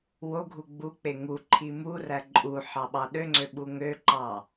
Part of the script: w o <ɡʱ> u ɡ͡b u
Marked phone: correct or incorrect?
correct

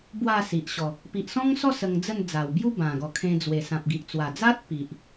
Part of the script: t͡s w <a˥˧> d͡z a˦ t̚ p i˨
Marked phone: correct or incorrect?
incorrect: a˨˩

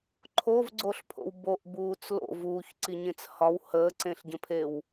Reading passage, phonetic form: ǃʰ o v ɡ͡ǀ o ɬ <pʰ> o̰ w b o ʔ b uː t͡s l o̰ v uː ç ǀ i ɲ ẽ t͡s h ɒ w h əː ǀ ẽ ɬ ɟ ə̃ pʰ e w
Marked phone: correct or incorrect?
correct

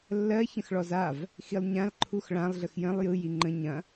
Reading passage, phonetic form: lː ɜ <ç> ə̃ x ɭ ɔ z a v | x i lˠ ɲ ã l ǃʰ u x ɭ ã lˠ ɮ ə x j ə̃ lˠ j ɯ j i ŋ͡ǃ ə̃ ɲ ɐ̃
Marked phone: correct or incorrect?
correct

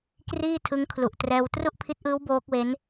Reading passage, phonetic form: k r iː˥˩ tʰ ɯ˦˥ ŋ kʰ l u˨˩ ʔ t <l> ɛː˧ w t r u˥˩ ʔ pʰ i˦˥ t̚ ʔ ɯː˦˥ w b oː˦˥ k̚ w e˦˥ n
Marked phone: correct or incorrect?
incorrect: r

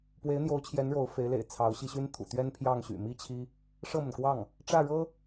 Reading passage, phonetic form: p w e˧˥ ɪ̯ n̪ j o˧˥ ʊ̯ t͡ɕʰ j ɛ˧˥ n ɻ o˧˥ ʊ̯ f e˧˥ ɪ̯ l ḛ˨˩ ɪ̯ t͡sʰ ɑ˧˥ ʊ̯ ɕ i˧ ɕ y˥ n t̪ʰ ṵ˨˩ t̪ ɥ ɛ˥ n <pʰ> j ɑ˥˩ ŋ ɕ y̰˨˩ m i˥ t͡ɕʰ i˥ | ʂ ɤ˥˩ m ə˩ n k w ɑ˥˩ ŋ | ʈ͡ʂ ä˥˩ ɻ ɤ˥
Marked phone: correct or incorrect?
correct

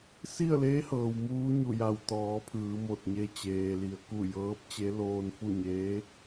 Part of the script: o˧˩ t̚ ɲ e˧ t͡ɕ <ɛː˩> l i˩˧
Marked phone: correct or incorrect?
incorrect: eː˩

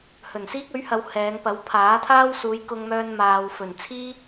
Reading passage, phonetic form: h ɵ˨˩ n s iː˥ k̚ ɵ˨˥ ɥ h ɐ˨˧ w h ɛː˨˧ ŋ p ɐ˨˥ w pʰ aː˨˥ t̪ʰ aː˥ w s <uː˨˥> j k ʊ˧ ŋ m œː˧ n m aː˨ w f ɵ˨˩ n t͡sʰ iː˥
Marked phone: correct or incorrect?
incorrect: uː˨˧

